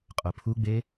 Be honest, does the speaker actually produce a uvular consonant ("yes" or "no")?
yes